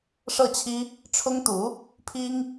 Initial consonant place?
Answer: retroflex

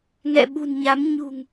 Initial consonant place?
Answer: velar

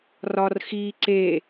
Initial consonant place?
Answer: alveolar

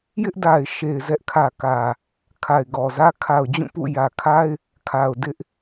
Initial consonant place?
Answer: palatal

